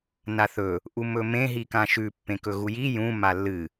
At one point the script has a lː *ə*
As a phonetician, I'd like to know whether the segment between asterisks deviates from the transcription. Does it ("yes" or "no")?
yes